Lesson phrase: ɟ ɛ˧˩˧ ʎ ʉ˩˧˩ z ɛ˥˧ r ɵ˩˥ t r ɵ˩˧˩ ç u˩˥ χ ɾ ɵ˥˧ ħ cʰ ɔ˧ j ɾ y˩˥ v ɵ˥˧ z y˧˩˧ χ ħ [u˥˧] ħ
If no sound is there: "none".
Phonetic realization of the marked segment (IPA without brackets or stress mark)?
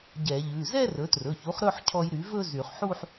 u˥˧